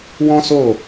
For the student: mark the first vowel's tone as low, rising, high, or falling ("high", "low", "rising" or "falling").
high